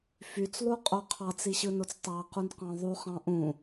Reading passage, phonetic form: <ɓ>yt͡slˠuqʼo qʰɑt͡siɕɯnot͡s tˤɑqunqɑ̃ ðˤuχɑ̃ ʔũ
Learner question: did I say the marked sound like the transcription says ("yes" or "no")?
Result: no